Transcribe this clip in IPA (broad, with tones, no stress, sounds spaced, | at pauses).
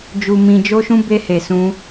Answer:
d͡ʒ u˨ m ĩ˨ d͡ʒ o˧ ʃ ũ˧ b e˧ h e˨ s ũ˧